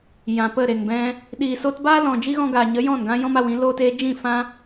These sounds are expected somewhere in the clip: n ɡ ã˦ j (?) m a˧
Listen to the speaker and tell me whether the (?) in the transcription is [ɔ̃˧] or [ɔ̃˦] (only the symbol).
ɔ̃˦